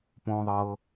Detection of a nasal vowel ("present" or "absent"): present